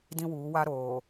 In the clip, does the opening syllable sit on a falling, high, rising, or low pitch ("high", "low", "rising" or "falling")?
high